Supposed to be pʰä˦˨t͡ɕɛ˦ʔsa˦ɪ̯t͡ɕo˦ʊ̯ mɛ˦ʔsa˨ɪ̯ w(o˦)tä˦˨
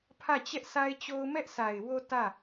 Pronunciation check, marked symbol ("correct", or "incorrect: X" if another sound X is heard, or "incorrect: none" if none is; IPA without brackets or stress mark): correct